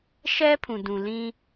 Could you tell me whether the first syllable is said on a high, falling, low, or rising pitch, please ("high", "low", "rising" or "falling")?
high